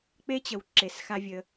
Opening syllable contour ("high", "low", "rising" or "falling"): high